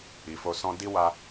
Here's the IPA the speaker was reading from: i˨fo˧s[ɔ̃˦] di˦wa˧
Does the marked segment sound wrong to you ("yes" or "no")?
no